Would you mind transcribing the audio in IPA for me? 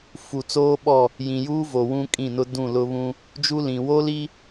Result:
fu˨t͡soː˦ɓɔ˦˨ | jĩ˨juː˦vo˨ wũ˦kʼĩ˦˨nʊ˦ dũ˦˨lʊ˦βũ˦ | d͡ʒu˦lĩ˨ wo˦li˦

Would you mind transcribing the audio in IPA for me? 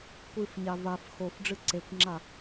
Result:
kʷɨfɲa vaf xofɖ͡ʐɨ ǀekʷŋ͡ǁa

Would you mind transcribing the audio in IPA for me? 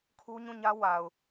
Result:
kʰu˦ ɲũ˦˨ɲä˦ wa˨ʊ̯

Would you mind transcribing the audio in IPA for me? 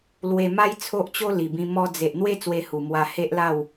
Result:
lwe˧ma˦j t͡sʰo˦ʔt͡ɕo˦li˨˩bĩ˧ mɔ˧d͡ze˨ʔn̪we˦ t͡swe˧hu˨˩ mwa˧ he˦ʔla˥˧w

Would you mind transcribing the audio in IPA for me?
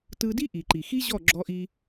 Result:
tɯ˧di˦ ʔi˨ǃi˨xi˦ʑɔ˦˨ ɡ͡ǁɔ˧ʔi˧

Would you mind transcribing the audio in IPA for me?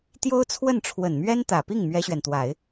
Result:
t̪jo˥ʊ̯t͡sʰwə˥˩n ʈ͡ʂʰwə˨˩nmɥɛ˥nt̪ä˨˩pi˥˩ŋ mɥɛ˥ɕɥɛ˨nt̪wa˨˩˦ɪ̯

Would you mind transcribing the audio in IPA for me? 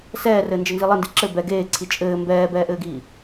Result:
sɛːrɘːnd͡ʒɘnzi lˠɘndi ǁɘ bɛ ɡeːǀʰi t͡ʃʼɘː mbɛːbɛːʔɘːɡiː

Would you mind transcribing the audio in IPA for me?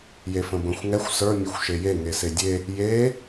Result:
jefə̃bə̃xʷ ŋɛxʷ sə˞ mʲɛxʷʃeje ŋesedʲe | je

